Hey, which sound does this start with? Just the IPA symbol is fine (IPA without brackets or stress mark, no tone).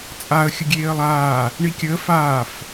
t͡sʼ